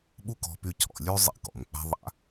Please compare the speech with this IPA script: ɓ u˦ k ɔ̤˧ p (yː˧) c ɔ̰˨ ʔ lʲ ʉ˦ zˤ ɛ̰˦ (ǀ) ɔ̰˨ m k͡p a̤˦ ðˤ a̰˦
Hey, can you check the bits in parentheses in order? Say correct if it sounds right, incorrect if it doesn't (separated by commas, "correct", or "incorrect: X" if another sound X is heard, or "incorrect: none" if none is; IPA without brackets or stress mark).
incorrect: y˧, incorrect: k